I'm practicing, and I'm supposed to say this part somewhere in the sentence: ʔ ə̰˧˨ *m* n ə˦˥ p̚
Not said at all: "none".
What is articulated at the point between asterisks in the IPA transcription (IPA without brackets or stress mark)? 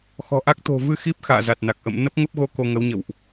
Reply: m